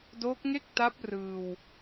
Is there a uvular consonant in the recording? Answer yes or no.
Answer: no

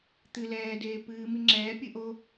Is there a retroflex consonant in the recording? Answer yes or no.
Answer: no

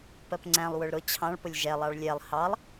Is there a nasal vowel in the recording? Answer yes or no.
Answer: yes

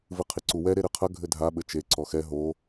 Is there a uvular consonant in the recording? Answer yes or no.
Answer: yes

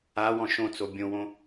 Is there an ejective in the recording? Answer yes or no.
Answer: no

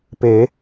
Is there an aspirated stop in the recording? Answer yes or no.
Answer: no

